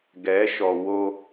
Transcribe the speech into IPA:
ɡ ɛ˨˦ ʃ ɔ˨ w o˦

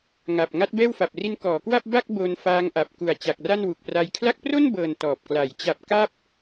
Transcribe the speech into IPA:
ŋ a˨˩ p̚ ŋ a˦˥ t̚ b ɛː˥˩ w f a˨˩ p̚ r i˦˥ n k ɔː˩˦ k w a˥˩ p̚ b a˥˩ k̚ b o˧ n f aː˦˥ ŋ ʔ a˨˩ p̚ k u˨˩ a̯ t͡ɕ a˨˩ k̚ r a˥˩ n w u˨˩ k̚ p r a˦˥ j kʰ l a˦˥ k̚ p r o˥˩ n b ɤː˨˩ n t ɔː˨˩ p̚ k l a˩˦ j t͡ɕ a˨˩ p̚ k a˥˩ p̚

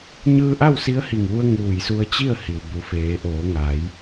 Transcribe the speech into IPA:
ɲ ɯː˧ ʔ a˥˨ w s i˧˥ ə̯ h i˧˩ ŋ ʋ u˧ ə̯ ŋ uː˧˩ j s u˧ ə̯ t͡ɕ i˥˨ ə̯ h i˩ w b u˩˧ f eː˩˧ ʔ oː˩˧ ŋ a˩˧ j

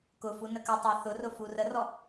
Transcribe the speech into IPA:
k ʊ f u n ə k ə tˤ æ θ ʊ r ʊ f u r ə r ɔ

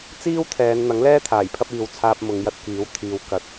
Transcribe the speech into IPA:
t͡s iː˥ w t̪ʰ ɛː˨˧ n n̪ ɐ˨˥ ŋ l ɛː˥ t̪ʰ aː˨˩ j pʰ ɐ˧ p̚ iː˨ w t͡sʰ aː˧ p̚ m ʊ˨˧ ŋ j ɐ˧ t̚ k iː˨˥ w t̪ʰ iː˨ w k ɐ˨˥ t̚

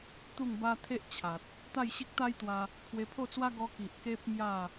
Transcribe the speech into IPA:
t̪ u˥˧ ŋ b a˦ t̪ʰ e˦ ʔ t͡ɕʰ a˨ t̚ | t̪ a˥˧ j ɕ i˦ k̚ t̪ a˦ j t̪ w a˧ | pʰ w e˧ pʰ o˥˧ t͡s w a˦ ɡ ɔ˧ k i˨ ʔ k e˦ p̚ m j a˥˧

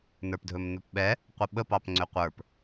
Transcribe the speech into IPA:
n ə˞ p dʱ ɵ m n̪ ɵ p ɓ ɛ | qʷ ə ɓ ə p ɑ p ŋ͡ǀ ʏ qʷ ə˞ p

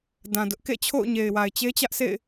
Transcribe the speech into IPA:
d ã˨ d ʊ˦ ʔ k ḛ˦˨ t͡ɕʰ o̰˦˨ ʊ̯ ɲ e˨ ɪ̯ w a˨ ɪ̯ t͡ɕ e˦ t͡ɕ ä˦ ʔ sʰ ḛ˦˨ ɪ̯

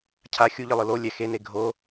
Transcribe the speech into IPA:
cʰ a xʲ u ʎ ɯ lˠ ɯ l o lʲ ɛ x e n e ɡʱ o

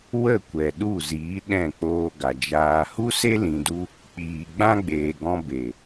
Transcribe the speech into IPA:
w ə˦˨ kʷ ɛ˨ ɗ u˦˨ z iː˨˦ ɗ ɛ̃˦˨ k͡p oː˧ ɡ a˨ d͡ʒ aː˧ h u˦ s e˦ l ĩ˨ d u˧ | k͡p iː˨ ɡ͡b ã˦ ɡ͡b eː˨ ɡ ɔ̃˧ b e˨

